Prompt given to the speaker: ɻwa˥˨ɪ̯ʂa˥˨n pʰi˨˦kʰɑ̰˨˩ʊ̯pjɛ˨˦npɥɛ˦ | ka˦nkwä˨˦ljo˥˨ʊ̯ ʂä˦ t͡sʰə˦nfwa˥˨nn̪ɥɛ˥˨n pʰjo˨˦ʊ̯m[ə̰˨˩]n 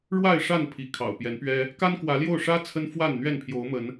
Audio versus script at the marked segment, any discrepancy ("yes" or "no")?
yes